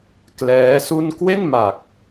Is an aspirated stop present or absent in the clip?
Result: absent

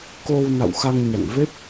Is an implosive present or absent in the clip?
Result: absent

